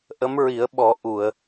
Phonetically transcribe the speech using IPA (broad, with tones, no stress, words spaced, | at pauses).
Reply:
ʔə˧˥mɹi˨˩˦ə̯ɓɔ˨˩˦ ʔu˨˩˨ə̯